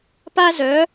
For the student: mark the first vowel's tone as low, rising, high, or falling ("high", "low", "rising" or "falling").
high